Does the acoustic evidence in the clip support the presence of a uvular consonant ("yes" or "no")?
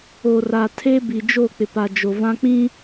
no